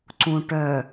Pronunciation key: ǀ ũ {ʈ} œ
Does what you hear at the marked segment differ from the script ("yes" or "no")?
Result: no